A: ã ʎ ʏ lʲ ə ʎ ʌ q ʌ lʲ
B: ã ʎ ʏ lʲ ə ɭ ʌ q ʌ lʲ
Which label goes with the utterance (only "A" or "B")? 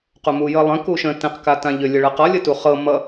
B